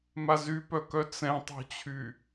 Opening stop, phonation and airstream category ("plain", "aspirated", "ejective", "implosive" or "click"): plain